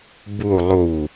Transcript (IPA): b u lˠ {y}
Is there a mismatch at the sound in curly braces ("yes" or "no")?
yes